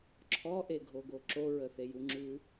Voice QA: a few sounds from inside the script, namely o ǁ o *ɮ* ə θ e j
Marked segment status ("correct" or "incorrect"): incorrect